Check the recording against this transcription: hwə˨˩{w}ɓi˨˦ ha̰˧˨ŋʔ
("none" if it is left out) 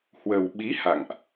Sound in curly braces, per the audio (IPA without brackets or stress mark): w